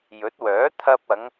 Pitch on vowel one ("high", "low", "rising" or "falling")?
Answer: rising